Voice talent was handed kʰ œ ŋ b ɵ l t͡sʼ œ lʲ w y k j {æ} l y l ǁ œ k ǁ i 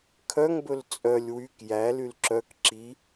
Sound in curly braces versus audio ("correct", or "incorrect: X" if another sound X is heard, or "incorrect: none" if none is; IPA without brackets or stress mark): correct